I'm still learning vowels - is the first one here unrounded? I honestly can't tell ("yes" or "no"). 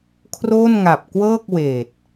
no